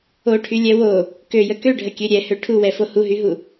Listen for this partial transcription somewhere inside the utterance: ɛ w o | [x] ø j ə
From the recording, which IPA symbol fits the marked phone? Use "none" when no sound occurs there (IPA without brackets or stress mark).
k